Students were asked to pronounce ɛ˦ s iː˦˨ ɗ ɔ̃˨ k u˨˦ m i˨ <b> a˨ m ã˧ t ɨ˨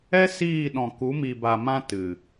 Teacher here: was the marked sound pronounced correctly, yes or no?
yes